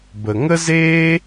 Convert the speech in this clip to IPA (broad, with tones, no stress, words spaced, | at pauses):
bə˨ŋə˦zeː˦